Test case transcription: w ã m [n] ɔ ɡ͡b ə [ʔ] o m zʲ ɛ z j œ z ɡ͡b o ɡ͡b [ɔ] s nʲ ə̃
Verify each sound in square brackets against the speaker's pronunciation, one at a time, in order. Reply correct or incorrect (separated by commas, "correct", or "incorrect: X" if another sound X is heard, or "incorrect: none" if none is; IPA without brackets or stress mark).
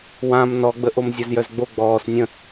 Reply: correct, correct, incorrect: ɔː